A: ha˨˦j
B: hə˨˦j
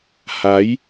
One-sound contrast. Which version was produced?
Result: A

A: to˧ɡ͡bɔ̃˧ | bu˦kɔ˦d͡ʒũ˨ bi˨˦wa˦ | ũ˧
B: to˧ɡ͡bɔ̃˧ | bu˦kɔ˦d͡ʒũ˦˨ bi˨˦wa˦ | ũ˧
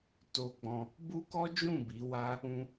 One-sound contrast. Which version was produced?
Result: B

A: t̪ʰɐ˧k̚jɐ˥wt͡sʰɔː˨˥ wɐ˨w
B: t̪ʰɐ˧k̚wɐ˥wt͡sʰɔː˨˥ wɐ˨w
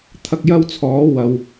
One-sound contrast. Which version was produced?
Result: A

